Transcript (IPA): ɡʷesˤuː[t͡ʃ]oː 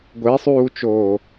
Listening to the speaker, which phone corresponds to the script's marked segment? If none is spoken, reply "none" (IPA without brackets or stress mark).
t͡ʃ